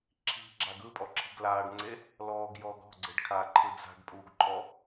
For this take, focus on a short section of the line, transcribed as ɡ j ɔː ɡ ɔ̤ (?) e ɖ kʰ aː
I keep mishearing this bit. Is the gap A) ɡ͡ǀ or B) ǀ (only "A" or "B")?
A